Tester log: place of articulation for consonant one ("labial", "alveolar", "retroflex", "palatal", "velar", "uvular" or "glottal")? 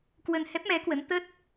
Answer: velar